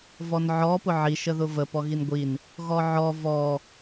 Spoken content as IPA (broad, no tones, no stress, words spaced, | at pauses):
vɔnʕɔ pʊʕi ʃəðʊvə pɔɣinɡʷin | ɣɔʕɔ vɔ